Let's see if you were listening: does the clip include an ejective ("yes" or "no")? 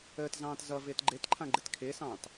no